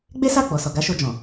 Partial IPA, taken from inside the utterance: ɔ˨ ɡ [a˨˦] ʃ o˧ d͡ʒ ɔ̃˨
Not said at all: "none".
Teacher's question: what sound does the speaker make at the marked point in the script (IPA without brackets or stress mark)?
a˨˦